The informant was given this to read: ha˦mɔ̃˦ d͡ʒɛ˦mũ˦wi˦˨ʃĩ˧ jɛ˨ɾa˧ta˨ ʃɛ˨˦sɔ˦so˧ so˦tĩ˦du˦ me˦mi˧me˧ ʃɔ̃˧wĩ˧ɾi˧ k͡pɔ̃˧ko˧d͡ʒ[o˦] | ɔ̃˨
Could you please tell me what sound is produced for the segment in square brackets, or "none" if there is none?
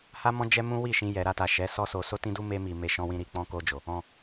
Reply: o˨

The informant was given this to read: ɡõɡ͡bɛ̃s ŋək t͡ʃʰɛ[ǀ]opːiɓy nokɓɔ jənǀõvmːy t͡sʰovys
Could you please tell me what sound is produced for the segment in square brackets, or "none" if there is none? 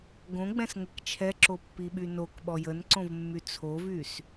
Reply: ǁ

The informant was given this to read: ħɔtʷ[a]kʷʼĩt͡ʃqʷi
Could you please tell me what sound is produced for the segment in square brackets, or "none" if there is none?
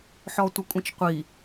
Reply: ʌ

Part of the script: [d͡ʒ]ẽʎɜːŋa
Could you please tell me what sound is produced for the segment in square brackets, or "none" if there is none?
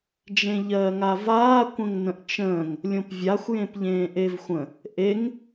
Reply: d͡ʒ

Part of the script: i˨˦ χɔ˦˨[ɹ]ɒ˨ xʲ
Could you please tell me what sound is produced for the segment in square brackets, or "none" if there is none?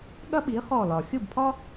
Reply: l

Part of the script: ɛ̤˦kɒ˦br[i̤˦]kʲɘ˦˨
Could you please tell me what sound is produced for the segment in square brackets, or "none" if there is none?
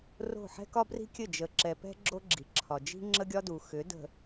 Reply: i̤˦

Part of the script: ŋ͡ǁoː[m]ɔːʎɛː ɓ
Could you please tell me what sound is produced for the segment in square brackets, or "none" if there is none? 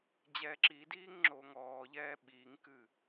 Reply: ŋ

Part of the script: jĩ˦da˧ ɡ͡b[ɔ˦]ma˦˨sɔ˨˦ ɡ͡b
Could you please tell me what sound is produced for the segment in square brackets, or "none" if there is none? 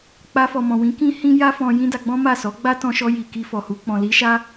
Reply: ɔ̃˦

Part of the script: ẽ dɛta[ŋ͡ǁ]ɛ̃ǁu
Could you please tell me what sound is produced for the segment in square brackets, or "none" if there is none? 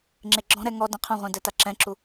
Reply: ǁ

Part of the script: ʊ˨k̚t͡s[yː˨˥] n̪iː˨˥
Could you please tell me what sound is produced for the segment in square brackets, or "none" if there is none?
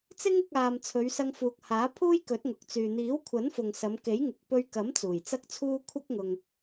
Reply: yː˨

